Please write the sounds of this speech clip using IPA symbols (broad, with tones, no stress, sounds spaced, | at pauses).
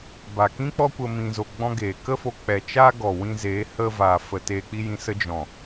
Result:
b a˨ k ĩ˦ k͡p ɔ˦ kʷ ə˧ m ĩ˧ z o˧ ɡ͡b ɔ̃˦ ɡ eː˨ k ə˦ f o˧ k͡p ɛ˨ t͡ʃ a˦ ɡ ɔ˨ w ĩ˧ z eː˨˦ h ə˧ v a˨ f ə˨ t eː˧ k͡p i˦ j ĩ˧ s ə˦ d͡ʒ ɔ̃˨